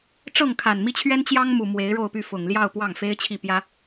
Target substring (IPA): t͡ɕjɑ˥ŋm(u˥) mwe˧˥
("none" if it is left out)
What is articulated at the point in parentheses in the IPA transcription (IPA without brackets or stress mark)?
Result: u˨˩